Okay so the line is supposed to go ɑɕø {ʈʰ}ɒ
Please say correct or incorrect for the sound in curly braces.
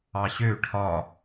correct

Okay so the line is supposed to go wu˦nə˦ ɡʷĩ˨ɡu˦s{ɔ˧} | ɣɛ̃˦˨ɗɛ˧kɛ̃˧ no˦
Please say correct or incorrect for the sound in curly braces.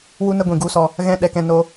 correct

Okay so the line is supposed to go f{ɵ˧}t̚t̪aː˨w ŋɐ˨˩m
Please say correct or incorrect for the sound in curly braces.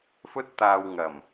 correct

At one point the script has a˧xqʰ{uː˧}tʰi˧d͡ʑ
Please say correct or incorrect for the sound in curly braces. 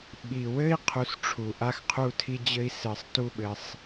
incorrect: u˧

